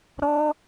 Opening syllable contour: high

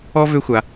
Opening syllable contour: high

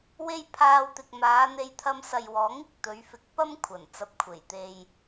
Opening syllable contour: high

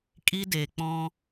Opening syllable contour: high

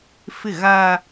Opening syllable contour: falling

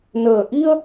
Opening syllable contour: low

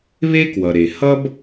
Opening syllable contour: high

